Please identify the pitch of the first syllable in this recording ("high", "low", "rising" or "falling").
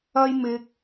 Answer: high